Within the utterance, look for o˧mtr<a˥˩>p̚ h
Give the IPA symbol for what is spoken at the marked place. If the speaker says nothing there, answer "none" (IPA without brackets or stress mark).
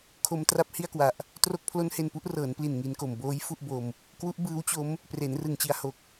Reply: a˥˩